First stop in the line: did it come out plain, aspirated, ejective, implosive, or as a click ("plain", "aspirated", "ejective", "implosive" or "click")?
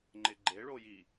click